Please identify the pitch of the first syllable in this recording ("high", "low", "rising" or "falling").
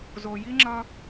low